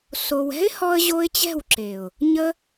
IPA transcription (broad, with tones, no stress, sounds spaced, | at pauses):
s o˧ w ɛ̤˦ ɪ̯ h ɔ˧ ə̯ ʑ o˧ ɪ̯ t͡ɕ ɛ̤˦˨ w ǁ e˨ ʊ̯ | ɲ ə˦